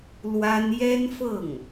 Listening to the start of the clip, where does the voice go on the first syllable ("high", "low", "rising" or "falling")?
high